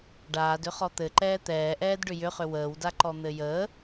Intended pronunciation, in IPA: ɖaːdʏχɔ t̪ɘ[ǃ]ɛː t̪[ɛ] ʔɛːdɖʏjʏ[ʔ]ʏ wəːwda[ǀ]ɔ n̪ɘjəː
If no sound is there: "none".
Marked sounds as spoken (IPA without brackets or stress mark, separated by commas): ǃ, ɛː, χ, ǃ